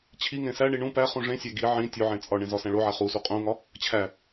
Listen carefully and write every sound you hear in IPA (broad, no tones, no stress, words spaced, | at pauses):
t͡ɕʰiŋẽ sæɳi ɳũ pæ χũʐẽsʲæ ɡi ʕĩ tʲoʕẽ t͡sʼɒɳẽ zɒsæ̃ɭoʕæ χusu qʼũŋɒ | t͡ɕʰæ